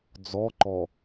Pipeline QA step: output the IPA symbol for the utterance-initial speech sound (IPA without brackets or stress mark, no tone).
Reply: d͡z